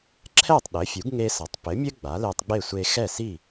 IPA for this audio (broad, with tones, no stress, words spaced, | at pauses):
ǁʰɛ˥˩tˤ ɗɘ˩˥fʲu˩˥ɡ ŋe˧sɐ˩tˤpɘ˩˥mʲɘ˥ ɡ͡ba˩˥le˧tˤɡ͡be˥˩ sʷe˧xɛ˥˩si˥˩